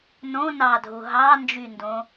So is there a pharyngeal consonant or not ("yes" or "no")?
no